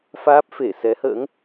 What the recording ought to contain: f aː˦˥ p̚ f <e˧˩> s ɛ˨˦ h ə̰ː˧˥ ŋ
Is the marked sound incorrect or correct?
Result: correct